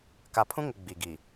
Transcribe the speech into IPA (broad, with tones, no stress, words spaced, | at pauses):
ka˨pʰũ˦ŋɪ˨ ɡ͡bi˨ɡi˨